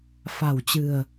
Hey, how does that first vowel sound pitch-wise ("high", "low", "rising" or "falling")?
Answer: low